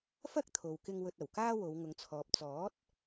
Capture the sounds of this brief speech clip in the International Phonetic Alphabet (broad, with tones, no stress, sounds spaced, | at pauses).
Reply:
f ɐ˥ k̚ t̪ʰ o˨ w k ɪ˧ ŋ w ɵ˧ t̚ ɐ˨˩ w k aː˥ w o˨˧ w ŋ ʊ˨ ŋ t͡sʰ ɔː˨ p̚ t͡s ɔː˨˥ t̚